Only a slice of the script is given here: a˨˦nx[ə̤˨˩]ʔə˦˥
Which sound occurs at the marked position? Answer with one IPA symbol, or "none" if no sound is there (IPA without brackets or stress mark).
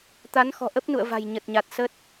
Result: ɔ̤˨˩